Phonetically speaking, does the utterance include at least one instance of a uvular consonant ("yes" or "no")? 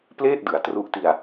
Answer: no